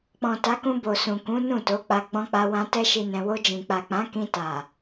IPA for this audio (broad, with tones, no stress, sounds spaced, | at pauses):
k͡p ɔ̃˨ t a˨˦ k ũ˧ b o˨ s ũ˨ k ũ˨˦ n ũ˦˨ t o˨˦ k͡p a˧ ɡ͡b ɔ̃˧ k͡p a˧ w ã˧ t ɛ˦ ʃ i˧ n ɛ̃˧ w o˧ d͡ʒ ĩ˨ k͡p a˨ k͡p ã˨˦ k ĩ˧ t a˨